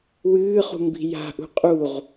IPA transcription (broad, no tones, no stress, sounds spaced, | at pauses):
w ɨː χ ṳ m b i̤ j a̤ ʔ ṳ qʼ u ʁ